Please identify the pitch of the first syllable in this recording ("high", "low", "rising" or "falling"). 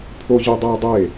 high